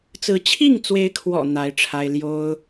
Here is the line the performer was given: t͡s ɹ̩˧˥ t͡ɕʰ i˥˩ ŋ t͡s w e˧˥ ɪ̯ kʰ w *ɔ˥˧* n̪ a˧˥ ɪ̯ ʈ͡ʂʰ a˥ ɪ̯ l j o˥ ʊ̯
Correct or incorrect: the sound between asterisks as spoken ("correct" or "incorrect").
incorrect